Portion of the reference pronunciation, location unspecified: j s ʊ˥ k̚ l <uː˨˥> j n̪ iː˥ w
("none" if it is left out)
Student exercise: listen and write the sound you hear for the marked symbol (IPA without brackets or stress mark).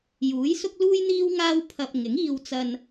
uː˥